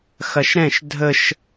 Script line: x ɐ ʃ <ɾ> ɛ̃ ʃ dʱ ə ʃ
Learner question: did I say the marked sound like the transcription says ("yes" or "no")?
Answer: yes